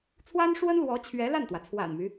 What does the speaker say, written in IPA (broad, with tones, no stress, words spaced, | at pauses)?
t͡sʰwa˥nʂwə˥nlwɔ˧˥ t͡ɕʰɥɛ˧˥la˥˩nt̪wä˩ t͡sʰwa̰˨˩nmy˦